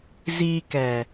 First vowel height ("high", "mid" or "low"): high